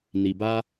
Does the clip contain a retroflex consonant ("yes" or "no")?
no